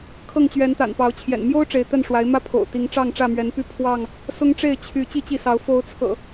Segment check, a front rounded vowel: present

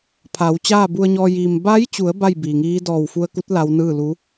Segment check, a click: absent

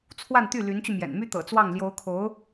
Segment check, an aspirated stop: present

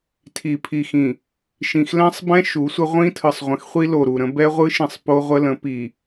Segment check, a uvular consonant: present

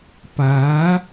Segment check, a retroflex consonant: absent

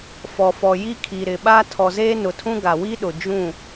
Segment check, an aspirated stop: present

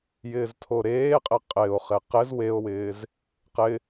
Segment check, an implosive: absent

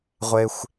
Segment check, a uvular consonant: present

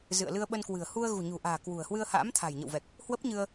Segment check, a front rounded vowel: absent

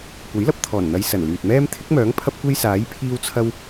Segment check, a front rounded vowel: present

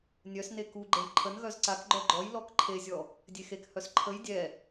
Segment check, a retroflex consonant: absent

